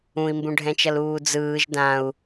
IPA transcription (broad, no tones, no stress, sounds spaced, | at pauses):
ũ i̯ m b ũ ɖʱ ɛ̃ t͡ʃ ʌ l uː d͡z ɯː ʒ d ã u̯